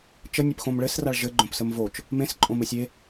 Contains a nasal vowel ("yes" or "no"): yes